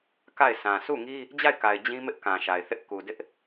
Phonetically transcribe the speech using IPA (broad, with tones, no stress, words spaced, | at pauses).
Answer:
ka˦˨ɪ̯sã˨ sʰu˦˨ŋi˦ | d͡ʑa˦˨ɪ̯ka˨ɪ̯ d͡ʑĩ˦mɪ˦ʔkã˨ ʃa˨ɪ̯θɪ˦ʔ ku˨dɪ˦ʔ